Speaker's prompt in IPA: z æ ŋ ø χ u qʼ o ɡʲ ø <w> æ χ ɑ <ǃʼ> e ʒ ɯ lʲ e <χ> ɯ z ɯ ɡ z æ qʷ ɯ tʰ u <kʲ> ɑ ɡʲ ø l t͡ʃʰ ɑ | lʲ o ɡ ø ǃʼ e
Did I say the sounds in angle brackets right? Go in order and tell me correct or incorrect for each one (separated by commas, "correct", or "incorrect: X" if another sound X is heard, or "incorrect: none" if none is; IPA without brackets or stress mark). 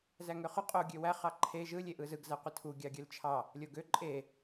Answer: correct, incorrect: ǃʰ, incorrect: ʔ, incorrect: ɡʲ